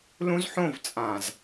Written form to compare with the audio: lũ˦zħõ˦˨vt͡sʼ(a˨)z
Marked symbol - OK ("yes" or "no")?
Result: no